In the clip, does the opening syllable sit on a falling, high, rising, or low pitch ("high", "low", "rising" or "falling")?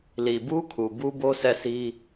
low